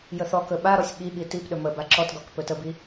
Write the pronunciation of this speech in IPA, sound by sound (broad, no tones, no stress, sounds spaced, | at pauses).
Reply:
j ə θ ɔ k ɵ ɓ a ɾ ɔ sʲ ɠ i ɠ i t i p ɗ ɵ m ə b a ǁ ɔ t ɡ ɔ k p ɵ t ə b i